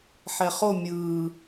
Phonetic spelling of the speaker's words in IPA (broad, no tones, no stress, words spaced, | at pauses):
ħɛχo mʲɯː